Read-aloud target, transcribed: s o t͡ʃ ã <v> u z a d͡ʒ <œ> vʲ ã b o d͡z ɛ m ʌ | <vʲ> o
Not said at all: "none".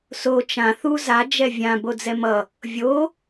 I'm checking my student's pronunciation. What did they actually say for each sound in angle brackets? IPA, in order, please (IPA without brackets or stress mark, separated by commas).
θ, ɛ, vʲ